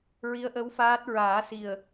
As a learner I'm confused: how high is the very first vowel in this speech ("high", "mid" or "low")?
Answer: high